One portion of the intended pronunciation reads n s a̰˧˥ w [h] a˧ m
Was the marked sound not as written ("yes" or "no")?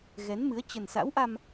yes